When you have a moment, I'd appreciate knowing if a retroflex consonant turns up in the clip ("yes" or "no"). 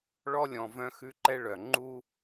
yes